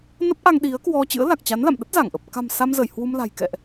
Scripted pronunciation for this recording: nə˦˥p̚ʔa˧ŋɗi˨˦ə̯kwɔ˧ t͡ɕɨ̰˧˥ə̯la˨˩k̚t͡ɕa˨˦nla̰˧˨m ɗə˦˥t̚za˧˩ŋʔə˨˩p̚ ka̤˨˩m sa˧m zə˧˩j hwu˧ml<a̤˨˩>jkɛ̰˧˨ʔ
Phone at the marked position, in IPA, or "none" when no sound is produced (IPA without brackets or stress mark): a̤˨˩